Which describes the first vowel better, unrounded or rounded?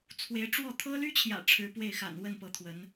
unrounded